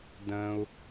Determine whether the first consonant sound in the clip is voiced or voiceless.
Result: voiced